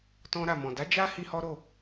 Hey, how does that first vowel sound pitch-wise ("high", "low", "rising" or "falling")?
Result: high